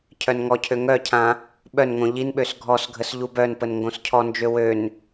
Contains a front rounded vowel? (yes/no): yes